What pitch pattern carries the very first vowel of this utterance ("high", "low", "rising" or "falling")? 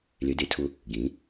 rising